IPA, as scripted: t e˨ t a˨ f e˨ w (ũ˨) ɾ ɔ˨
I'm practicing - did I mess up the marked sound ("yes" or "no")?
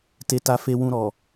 no